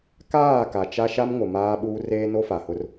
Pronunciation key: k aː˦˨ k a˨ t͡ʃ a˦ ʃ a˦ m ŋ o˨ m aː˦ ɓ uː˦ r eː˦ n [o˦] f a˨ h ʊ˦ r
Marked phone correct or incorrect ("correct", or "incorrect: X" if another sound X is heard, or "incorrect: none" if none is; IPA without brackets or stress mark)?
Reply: correct